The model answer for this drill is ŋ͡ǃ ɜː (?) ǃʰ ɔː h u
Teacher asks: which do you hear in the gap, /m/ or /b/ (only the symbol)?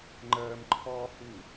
m